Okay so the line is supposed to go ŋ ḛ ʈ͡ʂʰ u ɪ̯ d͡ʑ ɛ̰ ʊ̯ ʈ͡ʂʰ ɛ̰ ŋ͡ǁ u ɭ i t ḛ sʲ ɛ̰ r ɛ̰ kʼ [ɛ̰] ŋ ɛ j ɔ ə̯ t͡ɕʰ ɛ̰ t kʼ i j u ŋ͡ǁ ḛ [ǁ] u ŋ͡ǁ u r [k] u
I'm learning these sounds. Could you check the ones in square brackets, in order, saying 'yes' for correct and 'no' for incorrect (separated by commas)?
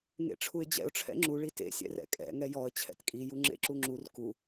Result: yes, yes, yes